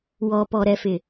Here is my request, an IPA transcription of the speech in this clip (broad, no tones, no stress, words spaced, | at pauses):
wɔpɔɾɛfɪ